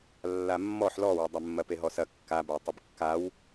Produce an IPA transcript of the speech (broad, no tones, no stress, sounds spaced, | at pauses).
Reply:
lː a mː ɔ ħ l ɔ w e dˤ ɐ mː ɐ p e ɦ ɔ s ɐ kː a b ɐ y̯ tˤ ə b kː a w